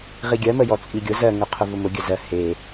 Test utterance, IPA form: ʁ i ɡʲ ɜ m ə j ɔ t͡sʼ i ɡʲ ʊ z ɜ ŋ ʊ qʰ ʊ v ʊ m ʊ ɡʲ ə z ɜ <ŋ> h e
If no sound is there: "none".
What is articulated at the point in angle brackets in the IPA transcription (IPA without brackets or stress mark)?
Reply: none